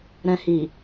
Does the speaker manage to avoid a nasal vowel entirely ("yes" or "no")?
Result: no